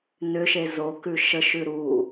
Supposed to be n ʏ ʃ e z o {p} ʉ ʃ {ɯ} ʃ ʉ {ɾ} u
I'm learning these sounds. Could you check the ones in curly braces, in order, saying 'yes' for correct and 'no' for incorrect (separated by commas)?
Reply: no, no, yes